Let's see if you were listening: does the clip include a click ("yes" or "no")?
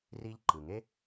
yes